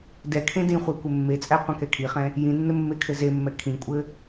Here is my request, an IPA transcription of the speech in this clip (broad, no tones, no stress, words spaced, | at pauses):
dɛkʰẽ dĩχʷe kʷɘmːet͡sʼæ qʷɛ̃kɛkʰiχɛ̃ | jĩnːɘ mːekʰɘzemːɛ kʰĩkʷʼɘ